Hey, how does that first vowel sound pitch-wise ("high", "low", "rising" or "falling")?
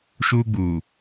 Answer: high